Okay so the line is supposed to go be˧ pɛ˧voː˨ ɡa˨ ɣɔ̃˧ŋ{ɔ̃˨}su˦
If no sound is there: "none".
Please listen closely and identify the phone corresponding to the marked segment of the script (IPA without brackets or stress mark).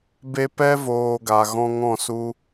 ɔ̃˦˨